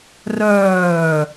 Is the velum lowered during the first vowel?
no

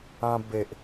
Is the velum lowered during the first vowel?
yes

